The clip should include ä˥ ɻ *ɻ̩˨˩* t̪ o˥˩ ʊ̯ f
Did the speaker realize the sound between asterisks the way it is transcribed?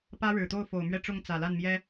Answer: yes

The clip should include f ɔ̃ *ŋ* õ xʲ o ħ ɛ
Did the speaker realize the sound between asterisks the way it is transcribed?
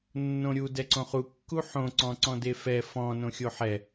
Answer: no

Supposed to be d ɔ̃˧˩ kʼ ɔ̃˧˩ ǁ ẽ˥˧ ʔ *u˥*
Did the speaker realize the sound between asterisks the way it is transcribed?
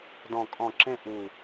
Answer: no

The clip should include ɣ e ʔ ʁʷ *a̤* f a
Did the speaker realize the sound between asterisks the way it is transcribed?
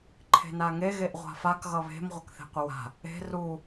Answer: yes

